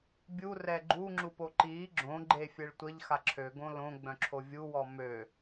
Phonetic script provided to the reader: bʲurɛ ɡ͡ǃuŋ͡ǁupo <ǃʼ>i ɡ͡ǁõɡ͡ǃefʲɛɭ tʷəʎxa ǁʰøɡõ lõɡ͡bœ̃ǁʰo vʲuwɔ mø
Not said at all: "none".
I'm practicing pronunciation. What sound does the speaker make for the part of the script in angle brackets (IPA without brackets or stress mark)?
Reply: ǃ